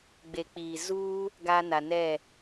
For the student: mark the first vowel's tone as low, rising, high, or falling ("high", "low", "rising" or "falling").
low